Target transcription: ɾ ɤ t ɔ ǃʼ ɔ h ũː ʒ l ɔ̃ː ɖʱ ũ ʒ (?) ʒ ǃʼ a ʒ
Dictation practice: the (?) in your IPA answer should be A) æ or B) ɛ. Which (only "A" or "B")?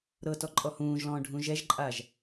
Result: B